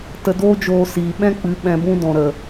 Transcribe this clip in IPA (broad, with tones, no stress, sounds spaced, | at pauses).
t ə˧ d oː˦ d͡ʒ oː˧ s iː˨ ɓ ɛ̃˦ k͡p ɨ˨˦ ɓ ɛ̃˧ b ũ˦ d ɔ̃˨ ɾ ə˨